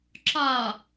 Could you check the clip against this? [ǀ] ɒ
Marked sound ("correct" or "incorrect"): incorrect